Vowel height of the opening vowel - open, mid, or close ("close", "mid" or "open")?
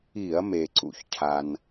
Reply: close